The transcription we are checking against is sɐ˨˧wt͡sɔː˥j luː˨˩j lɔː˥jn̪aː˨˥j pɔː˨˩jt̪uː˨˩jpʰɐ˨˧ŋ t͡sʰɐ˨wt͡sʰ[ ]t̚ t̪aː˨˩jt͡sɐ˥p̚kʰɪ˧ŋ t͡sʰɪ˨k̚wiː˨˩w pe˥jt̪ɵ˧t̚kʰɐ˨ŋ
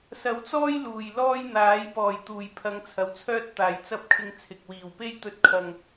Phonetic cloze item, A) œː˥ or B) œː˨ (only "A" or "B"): A